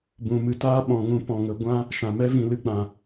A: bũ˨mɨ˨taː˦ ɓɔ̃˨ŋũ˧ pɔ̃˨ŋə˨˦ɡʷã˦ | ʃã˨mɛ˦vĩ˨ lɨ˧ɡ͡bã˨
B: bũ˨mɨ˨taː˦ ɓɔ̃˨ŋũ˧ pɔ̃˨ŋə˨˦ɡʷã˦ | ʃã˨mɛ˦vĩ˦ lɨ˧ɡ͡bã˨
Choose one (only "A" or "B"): A